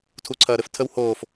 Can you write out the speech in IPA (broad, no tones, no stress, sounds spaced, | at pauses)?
tʰ u ǀʰ ɐː ɾ ɘ f tʰ ə w h oː f